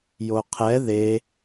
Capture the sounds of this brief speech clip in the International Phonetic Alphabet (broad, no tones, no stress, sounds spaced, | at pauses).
j o qʰ ɛ ð e